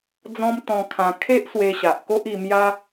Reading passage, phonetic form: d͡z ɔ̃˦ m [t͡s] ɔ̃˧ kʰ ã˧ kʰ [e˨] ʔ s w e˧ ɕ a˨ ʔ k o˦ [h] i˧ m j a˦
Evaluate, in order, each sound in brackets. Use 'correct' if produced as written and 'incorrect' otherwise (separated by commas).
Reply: incorrect, incorrect, incorrect